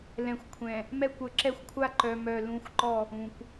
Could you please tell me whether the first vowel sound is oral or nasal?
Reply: nasal